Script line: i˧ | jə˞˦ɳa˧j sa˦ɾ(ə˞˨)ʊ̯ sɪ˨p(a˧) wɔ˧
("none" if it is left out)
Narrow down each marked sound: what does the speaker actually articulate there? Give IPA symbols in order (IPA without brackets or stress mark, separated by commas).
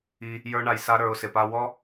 ə˞˧, a˧